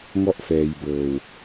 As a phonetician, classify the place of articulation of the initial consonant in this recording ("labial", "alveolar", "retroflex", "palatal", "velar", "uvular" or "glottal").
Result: velar